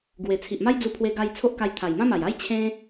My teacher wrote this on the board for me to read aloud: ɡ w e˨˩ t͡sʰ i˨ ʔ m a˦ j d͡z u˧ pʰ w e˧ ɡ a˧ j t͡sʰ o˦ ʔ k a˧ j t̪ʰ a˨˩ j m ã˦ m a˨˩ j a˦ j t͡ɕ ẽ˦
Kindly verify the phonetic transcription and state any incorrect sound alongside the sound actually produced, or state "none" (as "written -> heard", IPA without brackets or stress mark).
t͡ɕ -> t͡ɕʰ